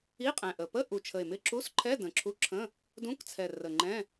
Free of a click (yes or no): no